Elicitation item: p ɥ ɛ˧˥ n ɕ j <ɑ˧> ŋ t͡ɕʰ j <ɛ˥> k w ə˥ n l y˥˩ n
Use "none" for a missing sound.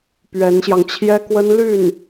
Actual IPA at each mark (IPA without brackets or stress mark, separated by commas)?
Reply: ɑ˧, ɛ˥